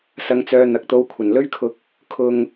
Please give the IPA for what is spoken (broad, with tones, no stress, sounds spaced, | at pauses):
s ɐ˧ ŋ t͡s œː˧ n̪ ɐ˨ k̚ t̪ o˧ w kʷʰ ɐ˨˩ n l ɵ˥ ɥ kʰ ʊ˧ k̚ | kʰ ʊ˧ ŋ